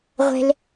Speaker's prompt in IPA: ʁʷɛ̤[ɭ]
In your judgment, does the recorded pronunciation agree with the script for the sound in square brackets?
no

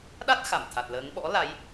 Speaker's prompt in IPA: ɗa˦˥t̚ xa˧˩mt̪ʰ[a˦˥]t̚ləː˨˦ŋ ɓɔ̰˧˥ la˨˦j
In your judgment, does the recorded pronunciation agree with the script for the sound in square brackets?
no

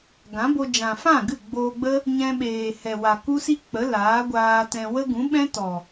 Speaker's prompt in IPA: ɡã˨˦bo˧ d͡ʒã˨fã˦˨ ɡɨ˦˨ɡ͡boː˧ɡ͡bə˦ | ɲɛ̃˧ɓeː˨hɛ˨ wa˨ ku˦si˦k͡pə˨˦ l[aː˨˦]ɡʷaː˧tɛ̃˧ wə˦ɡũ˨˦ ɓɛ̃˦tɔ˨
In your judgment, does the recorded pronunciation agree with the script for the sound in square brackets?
yes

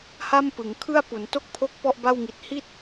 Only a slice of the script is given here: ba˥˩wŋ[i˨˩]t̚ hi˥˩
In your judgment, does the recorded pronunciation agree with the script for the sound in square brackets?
yes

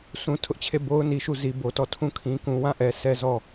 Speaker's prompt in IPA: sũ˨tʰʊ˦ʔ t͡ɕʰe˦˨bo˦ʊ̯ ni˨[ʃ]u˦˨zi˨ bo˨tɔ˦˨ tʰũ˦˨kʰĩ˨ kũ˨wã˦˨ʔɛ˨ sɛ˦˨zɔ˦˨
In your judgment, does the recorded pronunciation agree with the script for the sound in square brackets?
yes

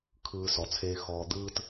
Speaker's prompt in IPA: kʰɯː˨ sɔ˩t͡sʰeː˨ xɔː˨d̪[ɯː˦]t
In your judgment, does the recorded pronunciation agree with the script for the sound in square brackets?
yes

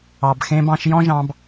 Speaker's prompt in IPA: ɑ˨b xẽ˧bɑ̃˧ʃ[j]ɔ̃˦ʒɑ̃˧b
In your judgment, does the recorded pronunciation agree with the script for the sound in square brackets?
yes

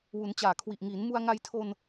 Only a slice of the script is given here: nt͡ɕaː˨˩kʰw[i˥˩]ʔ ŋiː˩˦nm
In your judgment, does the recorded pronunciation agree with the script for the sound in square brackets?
no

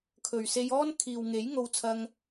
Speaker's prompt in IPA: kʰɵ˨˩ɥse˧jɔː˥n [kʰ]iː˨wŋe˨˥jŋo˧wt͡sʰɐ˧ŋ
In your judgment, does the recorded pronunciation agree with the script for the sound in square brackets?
yes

